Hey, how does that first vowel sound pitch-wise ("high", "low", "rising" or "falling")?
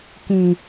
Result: low